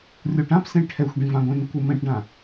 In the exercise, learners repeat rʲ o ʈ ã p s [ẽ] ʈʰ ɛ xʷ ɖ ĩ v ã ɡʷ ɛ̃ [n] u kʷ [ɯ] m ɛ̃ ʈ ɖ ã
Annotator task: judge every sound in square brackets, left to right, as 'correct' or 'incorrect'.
correct, correct, correct

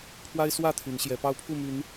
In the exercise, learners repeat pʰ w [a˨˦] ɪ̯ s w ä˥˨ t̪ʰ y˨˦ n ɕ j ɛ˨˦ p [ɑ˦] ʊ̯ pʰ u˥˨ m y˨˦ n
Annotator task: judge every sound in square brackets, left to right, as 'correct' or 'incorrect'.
incorrect, correct

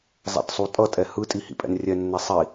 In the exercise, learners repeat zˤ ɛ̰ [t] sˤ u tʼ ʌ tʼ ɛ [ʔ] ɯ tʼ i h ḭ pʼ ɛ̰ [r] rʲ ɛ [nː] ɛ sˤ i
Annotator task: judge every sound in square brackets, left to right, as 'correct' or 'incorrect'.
correct, incorrect, incorrect, correct

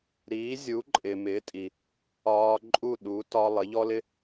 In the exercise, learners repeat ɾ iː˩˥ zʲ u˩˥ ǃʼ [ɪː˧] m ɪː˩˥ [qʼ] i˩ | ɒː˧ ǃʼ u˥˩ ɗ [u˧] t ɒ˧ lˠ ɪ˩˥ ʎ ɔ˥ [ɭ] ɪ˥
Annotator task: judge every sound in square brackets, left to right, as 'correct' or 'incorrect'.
incorrect, incorrect, incorrect, incorrect

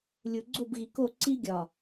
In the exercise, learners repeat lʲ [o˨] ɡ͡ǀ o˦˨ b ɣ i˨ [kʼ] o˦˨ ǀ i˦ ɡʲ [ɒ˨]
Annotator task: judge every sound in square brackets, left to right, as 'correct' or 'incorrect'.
incorrect, incorrect, correct

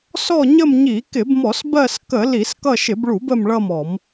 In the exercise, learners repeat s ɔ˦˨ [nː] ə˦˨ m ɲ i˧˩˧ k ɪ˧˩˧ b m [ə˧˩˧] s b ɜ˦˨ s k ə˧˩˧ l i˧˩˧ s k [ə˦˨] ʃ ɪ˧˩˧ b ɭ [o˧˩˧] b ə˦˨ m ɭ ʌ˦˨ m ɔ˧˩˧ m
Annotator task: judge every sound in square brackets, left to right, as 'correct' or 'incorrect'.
incorrect, incorrect, incorrect, incorrect

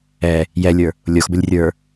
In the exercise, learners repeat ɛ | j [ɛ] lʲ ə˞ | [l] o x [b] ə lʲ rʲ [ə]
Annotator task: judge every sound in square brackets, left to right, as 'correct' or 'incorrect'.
correct, incorrect, correct, incorrect

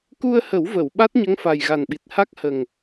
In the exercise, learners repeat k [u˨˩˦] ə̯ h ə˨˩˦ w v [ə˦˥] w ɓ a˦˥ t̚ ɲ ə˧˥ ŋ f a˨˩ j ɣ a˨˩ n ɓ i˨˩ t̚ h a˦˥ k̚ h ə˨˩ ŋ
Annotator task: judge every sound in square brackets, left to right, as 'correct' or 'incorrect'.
incorrect, incorrect

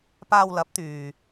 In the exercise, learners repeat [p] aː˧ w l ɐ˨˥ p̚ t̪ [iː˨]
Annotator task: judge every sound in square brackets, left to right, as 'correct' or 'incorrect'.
correct, incorrect

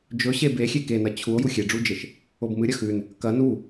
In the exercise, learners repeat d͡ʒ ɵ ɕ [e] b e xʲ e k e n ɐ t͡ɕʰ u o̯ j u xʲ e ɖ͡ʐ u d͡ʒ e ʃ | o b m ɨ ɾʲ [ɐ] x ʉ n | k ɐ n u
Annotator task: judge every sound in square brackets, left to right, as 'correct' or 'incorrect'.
correct, correct

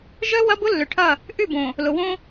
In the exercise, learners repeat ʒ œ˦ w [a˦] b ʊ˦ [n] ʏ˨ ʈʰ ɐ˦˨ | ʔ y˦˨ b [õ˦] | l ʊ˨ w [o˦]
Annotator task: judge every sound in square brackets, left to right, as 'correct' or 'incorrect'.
incorrect, incorrect, incorrect, incorrect

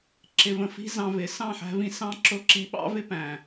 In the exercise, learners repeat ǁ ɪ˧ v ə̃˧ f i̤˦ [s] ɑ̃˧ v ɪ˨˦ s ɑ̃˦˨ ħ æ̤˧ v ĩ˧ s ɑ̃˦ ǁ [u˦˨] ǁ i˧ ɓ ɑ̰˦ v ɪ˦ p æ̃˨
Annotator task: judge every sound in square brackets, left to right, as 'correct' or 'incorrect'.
incorrect, incorrect

